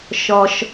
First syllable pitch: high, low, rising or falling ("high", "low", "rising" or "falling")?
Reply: low